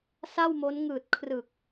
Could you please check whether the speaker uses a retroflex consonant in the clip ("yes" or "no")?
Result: no